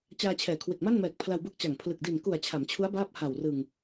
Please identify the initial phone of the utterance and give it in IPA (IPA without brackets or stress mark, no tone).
t͡ɕ